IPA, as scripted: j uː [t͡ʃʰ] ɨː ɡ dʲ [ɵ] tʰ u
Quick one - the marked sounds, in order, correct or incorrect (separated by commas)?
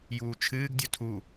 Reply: correct, correct